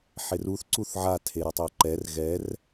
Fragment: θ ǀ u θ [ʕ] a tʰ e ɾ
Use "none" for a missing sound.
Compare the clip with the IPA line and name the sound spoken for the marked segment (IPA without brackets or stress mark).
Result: ʕ